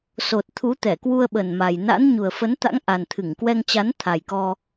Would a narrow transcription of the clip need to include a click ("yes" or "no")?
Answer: no